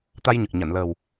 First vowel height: low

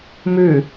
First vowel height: high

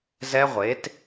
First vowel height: mid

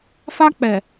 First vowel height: low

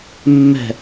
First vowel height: mid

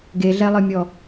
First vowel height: mid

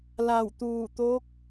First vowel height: low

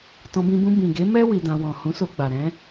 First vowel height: mid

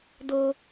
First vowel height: mid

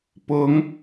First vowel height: high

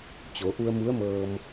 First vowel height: mid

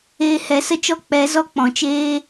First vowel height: mid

